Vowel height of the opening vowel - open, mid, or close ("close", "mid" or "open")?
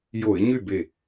mid